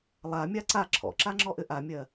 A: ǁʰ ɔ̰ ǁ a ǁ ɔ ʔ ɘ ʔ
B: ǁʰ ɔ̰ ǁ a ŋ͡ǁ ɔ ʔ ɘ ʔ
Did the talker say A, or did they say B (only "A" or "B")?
B